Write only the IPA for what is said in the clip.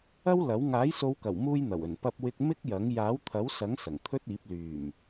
ɐ˥ w l ɐ˨˥ w ŋ aː˨˥ j s o˨˧ w k ɐ˨˩ w m uː˧ j n̪ ɐ˨˩ w ɵ˨˩ n p ɐ˧ p̚ w ɪ˧ k̚ m ɪ˥ k̚ j ɐ˨˥ ŋ j aː˨˥ w t̪ʰ ɐ˨˥ w s ɐ˨˥ ŋ s ɐ˨˩ ŋ t̪ʰ ɵ˥ t̚ iː˨˥ p̚ l yː˨˩ m

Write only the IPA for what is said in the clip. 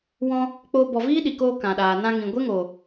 w ɔ̃˧ | k͡p o˧ b ɔ˨ v iː˦ ɗ i˨ k oː˧ k ã˨ ɗ aː˨ n ã˧ ŋ ĩ˨ ɡʷ e˦ ŋ o˨

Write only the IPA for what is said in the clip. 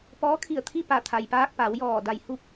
p ɔː˧˥ kʰ i˧˩ ə̯ t̪ʰ i˥˨ p a˧˩ t̪ʰ a˩ j p aː˧ k̚ p a˩˧ w j ɔː˧˩ d a˧˩ j h u˥˨ p̚

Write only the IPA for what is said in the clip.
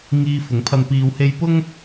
ŋ iː˧ f ʊ˨˥ ŋ pʰ ɐ˧ n p iː˧ w h e˧ j p ʊ˥ ŋ

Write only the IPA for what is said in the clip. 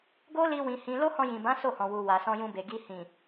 ɡ o˦ l i˧ w ĩ˨ h ĩ˧ l o˦ h ɔ̃˧ j ĩ˨ b ã˨˦ s o˦˨ h ɔ̃˨ w u˨ w a˨ s ɔ̃˧ j ũ˧ b e˨ ɡ i˧ h ĩ˨

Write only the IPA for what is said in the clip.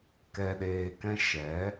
k ɛ˧ ɗ eː˧ k ɛ̃˦ ʃ ɛ˨˦

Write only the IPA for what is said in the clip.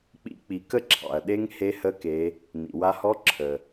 k͡p ḭ˧˥ k͡p i˩˧ k ə˥ ǁʰ ɑ̰˩ ɐ̯ ɗ e˥ ŋ h e˧˥ h ə˧˥ k e˩˧ | n ḭ˩ w a˧ h ɔ˧˥ ǁʰ ə˩

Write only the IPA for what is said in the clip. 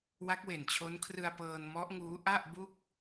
w a˦˥ k̚ w e˨˩ n t͡ɕʰ o˦˥ n kʰ r ɯ˧ a̯ p ɤː˧ n m ɔ˦˥ ʔ ŋ uː˦˥ ʔ a˥˩ ʔ b u˥˩ k̚

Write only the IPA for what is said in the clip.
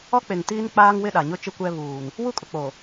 ɔ˦ k͡p e˨ ŋ t iː˦ n k͡p aː˦ ŋ w ɪ˦ ɗ a˨ ɲ ʊ˦ t͡ʃ ɪ˦ kʷ ɛ˦ β uː˨ n | w u˦ kʼ ʊ˨ k͡p o˨

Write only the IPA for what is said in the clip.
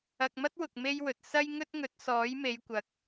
ɐ˨ k̚ m ɐ˥ t̚ w ʊ˨ k̚ m e˥ j w ɵ˨ t̚ s ɐ˥ j ŋ ɵ˥ t̚ ŋ ɵ˨˥ t̚ s ɔː˨˥ j m e˨˧ j kʷ ɐ˨˥ k̚

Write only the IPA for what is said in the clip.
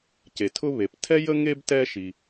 c e˩ tʰ ʊ˦ β e˩ p tʰ ɛ˥ j ə˥ ŋ e˥ b t ɛ˦ ʃ i˩

